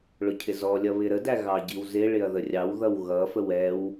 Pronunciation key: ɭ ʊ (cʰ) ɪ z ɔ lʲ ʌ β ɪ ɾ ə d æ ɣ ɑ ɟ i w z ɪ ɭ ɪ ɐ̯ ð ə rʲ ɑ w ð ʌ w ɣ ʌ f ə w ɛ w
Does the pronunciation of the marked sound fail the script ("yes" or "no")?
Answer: no